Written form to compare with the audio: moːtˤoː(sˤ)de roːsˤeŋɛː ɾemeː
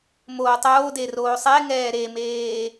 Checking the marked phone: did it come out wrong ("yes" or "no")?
yes